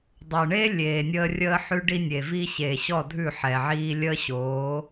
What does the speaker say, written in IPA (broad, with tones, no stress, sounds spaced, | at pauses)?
dˤ o˨ ɳ eː˦ lʲ eː˨ nʲ əː˦ rʲ əː˦ ħ ʉ˦ ɖ i˦ nʲ e˨ v i˦ ɕ eː˨ ɕ ɔ˦˨ dʱ ʉ˦˨ ħ ɛ˨ ʕ iː˦ lʲ əː˦ ɕ oː˨˦